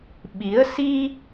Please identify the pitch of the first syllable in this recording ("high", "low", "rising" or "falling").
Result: rising